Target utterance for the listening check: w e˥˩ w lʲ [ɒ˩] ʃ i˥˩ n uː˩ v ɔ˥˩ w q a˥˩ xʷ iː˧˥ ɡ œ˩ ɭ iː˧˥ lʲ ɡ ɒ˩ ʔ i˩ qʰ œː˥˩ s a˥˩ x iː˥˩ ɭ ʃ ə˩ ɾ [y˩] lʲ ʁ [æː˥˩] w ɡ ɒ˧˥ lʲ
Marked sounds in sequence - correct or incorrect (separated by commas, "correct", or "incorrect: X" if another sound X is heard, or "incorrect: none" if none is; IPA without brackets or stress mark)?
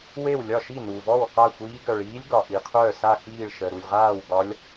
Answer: incorrect: ɒ˥˩, incorrect: u˩, incorrect: aː˥˩